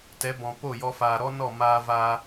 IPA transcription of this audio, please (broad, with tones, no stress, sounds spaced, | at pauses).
t ɛ˨˦ b ɔ̃˨ p o˦˨ j ɔ˧ f aː˨ ɾ ɔ˦ n ɔ˦˨ m aː˧ v aː˧